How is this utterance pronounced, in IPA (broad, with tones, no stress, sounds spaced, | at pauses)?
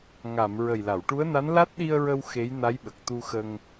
ŋ a˨˩˨ m ɹ ə˨˩ j l a˨˩˨ w ʈ u˧˥ ə̯ n a˧˥ n l a˦˥ t̚ ɗ i˧ ə̯ ɹ ə˧ w x e˧˥ j n a˧˥ j ɓ ə˨˩ k̚ t̪ u˧ x ə˧ ŋ